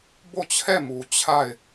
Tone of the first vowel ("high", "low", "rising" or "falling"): falling